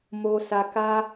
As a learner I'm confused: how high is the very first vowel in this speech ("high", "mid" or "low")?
mid